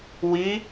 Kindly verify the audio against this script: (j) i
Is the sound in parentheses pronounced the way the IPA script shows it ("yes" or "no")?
no